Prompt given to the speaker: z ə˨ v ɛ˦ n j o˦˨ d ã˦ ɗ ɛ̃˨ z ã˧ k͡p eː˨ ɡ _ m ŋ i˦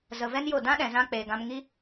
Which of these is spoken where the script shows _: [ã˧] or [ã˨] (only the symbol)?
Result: ã˧